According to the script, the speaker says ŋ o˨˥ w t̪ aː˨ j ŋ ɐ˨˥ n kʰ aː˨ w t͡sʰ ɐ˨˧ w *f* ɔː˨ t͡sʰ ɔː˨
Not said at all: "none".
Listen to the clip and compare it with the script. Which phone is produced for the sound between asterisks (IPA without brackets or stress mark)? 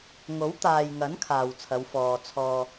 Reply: f